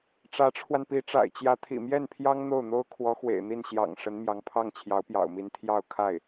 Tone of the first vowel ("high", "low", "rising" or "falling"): rising